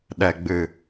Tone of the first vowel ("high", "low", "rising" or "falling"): low